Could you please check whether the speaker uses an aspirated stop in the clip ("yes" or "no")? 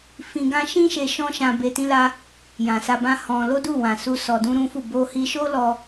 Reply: no